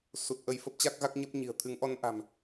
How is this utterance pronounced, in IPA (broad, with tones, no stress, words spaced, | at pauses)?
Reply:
su˨˩t̚ ʔə˧jfə˦˥p̚t͡ɕa˦˥k̚ɣa˦˥k̚ ɲə˦˥p̚ɲi̤˨˩ə̯ t̪ʰɨ˨˦ŋʔɔ˧nʔa̤˨˩m